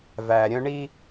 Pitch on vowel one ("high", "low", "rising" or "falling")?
low